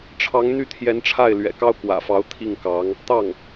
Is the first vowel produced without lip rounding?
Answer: yes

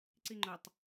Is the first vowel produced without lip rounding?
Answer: yes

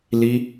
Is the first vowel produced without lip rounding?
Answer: yes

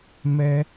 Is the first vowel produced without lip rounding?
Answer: yes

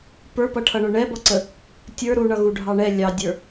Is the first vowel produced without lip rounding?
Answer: yes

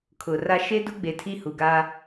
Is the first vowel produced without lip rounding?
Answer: no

